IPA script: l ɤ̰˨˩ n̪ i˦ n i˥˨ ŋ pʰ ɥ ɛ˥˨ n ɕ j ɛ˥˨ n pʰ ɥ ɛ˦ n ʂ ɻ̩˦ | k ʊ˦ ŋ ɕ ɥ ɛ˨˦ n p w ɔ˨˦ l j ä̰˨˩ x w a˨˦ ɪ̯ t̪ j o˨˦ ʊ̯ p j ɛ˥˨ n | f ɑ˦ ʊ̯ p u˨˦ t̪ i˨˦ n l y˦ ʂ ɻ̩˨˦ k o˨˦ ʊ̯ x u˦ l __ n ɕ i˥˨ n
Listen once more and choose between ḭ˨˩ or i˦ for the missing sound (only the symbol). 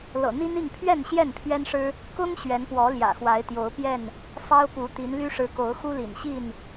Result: ḭ˨˩